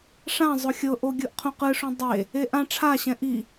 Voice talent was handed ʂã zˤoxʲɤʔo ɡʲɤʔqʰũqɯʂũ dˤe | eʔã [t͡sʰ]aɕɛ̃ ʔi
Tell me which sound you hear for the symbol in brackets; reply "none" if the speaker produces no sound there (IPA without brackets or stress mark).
ʈ͡ʂʰ